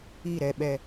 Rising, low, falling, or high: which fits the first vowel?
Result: falling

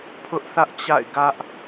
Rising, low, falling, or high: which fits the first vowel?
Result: high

